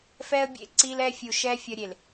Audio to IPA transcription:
fɛ˦ə̯bʲḛ˦ ǀi˦lɛ˦ fʲu˨ʃɛ˦ fʲʌ˦ ɾʲe˨l

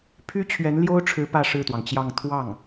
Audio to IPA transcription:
pʰy˥t͡ɕʰɥɛ˧˥nljo˥ʊ̯ʈ͡ʂʰɻ̩˧˥ pä˥˧ʂɻ̩˥˩t̪wɑ˩ŋt͡ɕjɑ˥˧ŋ t̪ʰwɑ˥˩ŋ

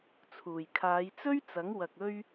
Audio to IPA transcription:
t͡sʰuː˨˩j kʰaː˨˧jt͡sɵ˥ɥt͡sɐ˨˥ŋ wɐ˨k̚ ɵ˥ɥ

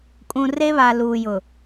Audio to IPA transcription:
kʼũ˨re˦βa˨ luː˨jʊ˨

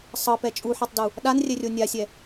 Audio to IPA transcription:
sˤɤpɛ t͡ʃʼuħɤtˤdu | ɗanrʲɛrʲo nʲasʲɛ

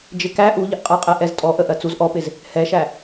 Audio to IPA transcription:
d͡ʒɪkæ ʔuʎəʔqʼɜqʼɛ ʔɛztʼɔʔə ʔɜt͡suz ʔɔpɪz | hɛʃæ

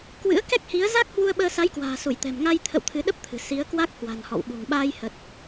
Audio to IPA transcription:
kwɨ̰˧˥ə̯kɛ˦˥k̚hi˨˦ə̯ za˦˥k̚hwu˧ə̯ɓəː˧ sa˨˦jkwa̤ː˨˩ su˧˩jt̪ɛ̤˨˩mŋa˧jt̪ʰə̰˧˨w t̪ʰɨ˨˦ɗə˦˥p̚t̪ʰɨ̤˨˩ si˨˦ə̯ kwa˦˥k̚hwa̤˨˩n hɔ̰˧˨wɓṳ˨˩ŋ ɓaː˧jhə˨˩t̚

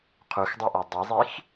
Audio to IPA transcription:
qʰuxdˤʉʔa dˤizˤix

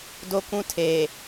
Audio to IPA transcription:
do˦kũ˦tʰeː˨

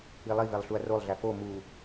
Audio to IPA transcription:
ilˠivelˠ ɬuɐ̯rolˠɮæ fo mu

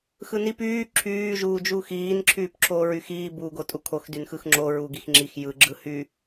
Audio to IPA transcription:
xɯnip yː ǁʰyː ʒuːd͡ʒuːxiːn ǁʰyːpǁʰoːɹyxiː buːɡotʼukʰox dynxɯxŋ͡ǁo ɹuɡixŋ͡ǁix jɯ ɡ͡ǁɯhy

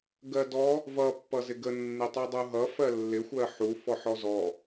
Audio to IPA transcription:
ɡɜdɔ | vʌ pːʌzɪɡə nːɪtˤudˤuɦʌ fɜlːɪ xʷɜħu fɔħɔzɔ

